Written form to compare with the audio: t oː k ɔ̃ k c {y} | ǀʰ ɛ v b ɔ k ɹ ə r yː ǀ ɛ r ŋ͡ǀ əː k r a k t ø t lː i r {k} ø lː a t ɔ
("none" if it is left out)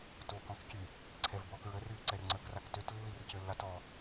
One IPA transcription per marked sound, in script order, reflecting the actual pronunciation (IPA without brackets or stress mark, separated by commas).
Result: y, c